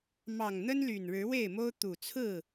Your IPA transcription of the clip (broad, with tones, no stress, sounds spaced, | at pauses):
m ɑ˨˩ ŋ n̪ ə˦ n l y˨˩ n ɻ ɻ̩˨˦ w e˥˨ ɪ̯ m o˦ ʊ̯ t̪ u˨˩ t͡sʰ ɹ̩˥˨